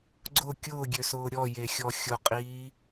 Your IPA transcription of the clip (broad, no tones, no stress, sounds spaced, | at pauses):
ɡ͡ǀ ʊ kʲ ʊː ɡʲ ø s ʊː ɾʲ ɔ j e xʲ ɔ xʲ ʊ qʼ iː